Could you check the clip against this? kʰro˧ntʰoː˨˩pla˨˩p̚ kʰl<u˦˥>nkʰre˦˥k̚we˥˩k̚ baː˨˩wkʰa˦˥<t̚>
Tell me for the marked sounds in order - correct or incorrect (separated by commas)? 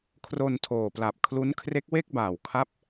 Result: correct, incorrect